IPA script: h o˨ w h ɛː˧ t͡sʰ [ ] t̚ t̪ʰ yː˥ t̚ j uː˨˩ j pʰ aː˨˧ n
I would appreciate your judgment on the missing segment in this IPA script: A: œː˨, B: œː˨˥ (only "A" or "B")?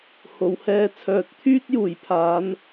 A